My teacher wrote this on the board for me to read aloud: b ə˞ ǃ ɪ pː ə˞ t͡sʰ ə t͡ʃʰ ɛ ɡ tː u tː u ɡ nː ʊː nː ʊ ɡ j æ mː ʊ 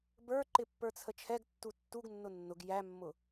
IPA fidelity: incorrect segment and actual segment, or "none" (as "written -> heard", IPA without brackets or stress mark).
ʊː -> ʊ